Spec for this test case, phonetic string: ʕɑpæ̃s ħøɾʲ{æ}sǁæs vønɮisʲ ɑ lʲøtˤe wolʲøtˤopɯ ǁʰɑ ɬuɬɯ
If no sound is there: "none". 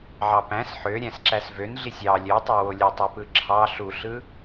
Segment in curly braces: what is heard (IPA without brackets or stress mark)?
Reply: æ̃